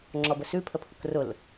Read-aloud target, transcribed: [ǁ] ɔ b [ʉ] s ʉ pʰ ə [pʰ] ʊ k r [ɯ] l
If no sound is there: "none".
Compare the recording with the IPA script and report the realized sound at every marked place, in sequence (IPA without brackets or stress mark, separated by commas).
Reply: ŋ͡ǁ, ə, pʰ, ʊ